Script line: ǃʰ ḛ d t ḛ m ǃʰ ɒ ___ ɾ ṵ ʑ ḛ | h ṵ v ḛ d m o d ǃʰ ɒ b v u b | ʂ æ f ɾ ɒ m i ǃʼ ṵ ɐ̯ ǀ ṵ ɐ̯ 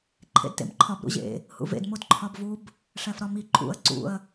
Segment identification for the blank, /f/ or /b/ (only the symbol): b